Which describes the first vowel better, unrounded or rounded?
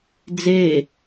unrounded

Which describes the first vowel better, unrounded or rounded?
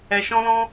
unrounded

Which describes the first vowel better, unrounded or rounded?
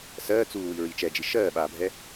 unrounded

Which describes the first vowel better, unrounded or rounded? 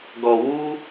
rounded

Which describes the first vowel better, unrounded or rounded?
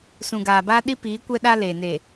rounded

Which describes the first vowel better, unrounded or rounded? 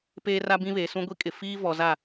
unrounded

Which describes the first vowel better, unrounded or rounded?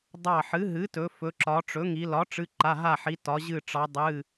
unrounded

